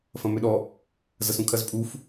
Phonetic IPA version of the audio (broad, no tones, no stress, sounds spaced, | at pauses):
f ɐ̃ m ʏ ɗ ɔ | z ɐ s ũ kʰ ɐ z pʼ u f